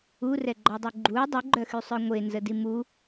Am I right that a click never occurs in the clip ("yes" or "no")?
no